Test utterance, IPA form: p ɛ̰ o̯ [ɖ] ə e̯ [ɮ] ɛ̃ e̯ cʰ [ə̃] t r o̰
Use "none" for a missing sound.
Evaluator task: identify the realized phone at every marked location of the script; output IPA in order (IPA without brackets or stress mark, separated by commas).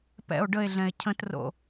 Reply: ɖ, ɮ, ə̃